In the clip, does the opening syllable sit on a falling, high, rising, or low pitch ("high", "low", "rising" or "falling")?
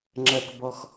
low